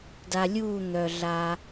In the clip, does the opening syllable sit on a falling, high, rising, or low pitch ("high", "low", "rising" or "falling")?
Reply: low